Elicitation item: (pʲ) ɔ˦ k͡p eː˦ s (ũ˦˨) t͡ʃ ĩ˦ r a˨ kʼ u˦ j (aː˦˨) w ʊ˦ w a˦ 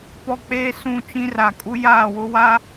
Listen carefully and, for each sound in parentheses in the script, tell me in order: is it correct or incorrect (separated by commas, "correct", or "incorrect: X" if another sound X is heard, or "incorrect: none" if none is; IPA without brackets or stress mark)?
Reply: incorrect: p, correct, correct